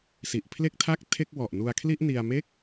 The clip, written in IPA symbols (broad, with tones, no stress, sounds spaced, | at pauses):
s i˨˩ ʔ pʰ l e˥˩ k̚ tʰ a˥˩ k̚ tʰ e˥˩ k̚ w ɔ˨˩ ʔ n u˧ a̯ kʰ l i˥˩ ʔ n i˧ a̯ m e˥˩ k̚